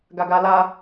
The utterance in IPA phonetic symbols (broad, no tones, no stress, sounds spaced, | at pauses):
ɡ a ɡ a l a